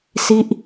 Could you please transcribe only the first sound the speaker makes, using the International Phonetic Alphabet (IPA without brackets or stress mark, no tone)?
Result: s